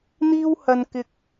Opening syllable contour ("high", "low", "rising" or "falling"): high